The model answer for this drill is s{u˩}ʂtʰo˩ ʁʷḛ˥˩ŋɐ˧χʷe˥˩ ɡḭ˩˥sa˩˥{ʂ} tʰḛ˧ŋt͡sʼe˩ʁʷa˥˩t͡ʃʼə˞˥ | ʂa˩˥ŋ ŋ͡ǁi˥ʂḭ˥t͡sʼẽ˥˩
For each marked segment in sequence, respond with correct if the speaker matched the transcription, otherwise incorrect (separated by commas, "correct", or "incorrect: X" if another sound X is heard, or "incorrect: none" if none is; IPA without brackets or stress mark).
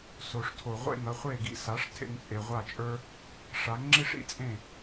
incorrect: o˩, correct